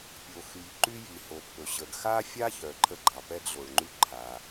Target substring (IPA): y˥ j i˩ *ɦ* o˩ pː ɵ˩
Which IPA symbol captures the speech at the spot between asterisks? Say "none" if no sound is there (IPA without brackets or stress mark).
h